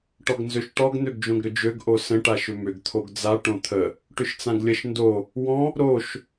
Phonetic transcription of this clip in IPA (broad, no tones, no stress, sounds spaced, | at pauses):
ʈ ɔ ɡ n z ø ʃ ʈ ɔ ɡ n̪ ø ɡ d͡ʒ õ ɡ ɾ ʏ d͡ʒ ø ɡ ʔ o s ə̃ ʈ a ʃ ʏ m ʏ ɡ t̪ʰ o ɡ d͡z a ʈ õ t̪ʰ ə | ʈ ʏ ʃ t͡s ã ɡ lʲ ə ʃ n d o | w ɔ̃ | ɾ o ʃ